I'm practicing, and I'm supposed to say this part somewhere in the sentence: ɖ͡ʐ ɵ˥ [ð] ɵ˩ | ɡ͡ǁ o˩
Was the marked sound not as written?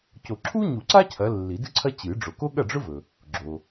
yes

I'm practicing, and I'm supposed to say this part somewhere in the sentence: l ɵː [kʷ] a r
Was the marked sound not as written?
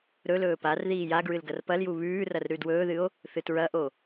yes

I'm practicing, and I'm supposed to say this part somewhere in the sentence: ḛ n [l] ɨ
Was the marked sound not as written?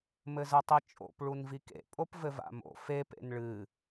yes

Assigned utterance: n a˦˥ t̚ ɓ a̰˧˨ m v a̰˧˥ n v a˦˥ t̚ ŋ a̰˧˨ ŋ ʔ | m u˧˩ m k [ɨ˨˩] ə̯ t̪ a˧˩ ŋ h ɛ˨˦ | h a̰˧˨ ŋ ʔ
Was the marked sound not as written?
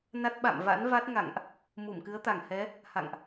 yes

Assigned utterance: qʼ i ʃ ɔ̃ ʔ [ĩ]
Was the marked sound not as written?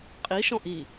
yes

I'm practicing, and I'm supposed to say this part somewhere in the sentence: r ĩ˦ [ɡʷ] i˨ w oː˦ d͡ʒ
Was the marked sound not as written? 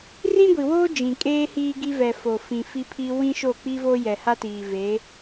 no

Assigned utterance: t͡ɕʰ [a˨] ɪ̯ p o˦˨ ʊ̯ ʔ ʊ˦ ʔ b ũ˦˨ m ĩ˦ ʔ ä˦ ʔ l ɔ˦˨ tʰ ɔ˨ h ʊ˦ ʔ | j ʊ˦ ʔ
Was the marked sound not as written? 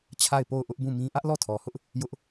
yes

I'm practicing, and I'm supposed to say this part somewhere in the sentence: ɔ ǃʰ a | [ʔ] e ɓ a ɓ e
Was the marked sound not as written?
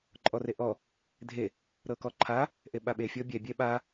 no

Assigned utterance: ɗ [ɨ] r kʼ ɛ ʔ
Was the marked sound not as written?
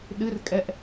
no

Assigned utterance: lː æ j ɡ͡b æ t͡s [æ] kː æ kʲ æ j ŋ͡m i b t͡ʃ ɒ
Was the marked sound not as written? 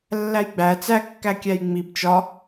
no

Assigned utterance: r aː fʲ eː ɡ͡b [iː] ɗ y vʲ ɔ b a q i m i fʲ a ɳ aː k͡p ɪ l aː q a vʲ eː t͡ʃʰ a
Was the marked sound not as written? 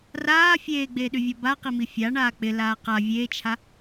yes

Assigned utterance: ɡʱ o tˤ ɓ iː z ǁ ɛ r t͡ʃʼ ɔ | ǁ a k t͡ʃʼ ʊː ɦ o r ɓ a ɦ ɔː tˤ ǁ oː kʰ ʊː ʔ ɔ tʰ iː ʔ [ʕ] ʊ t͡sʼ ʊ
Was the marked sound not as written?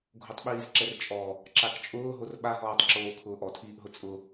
yes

